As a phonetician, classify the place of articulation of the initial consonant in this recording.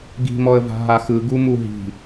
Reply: velar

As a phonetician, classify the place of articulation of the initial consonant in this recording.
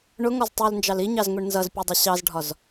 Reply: retroflex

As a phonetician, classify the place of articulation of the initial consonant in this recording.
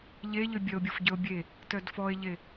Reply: palatal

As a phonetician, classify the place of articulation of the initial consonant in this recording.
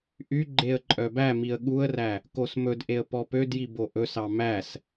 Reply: glottal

